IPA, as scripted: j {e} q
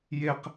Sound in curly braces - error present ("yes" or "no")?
no